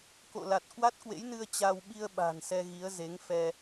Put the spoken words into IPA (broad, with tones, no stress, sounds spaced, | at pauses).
k o̰˧˨ l a˨˩ t̚ k w a˦˥ t̚ k w ḛ˧˥ j n ɨ˧ ə̯ t͡ɕ a˧ w ɓ i˧ ə̯ ɓ a̤˨˩ n s ɛ˧ ɣ i˨˦ ə̯ z e˨˦ ŋ f ɛ˧